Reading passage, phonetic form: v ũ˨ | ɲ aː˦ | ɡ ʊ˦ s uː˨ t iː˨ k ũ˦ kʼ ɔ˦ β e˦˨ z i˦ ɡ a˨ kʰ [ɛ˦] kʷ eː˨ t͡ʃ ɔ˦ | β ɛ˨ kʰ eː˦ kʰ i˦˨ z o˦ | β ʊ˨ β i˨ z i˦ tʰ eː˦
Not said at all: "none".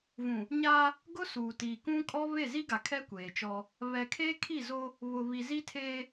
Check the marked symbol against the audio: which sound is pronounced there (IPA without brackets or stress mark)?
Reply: ɛ˦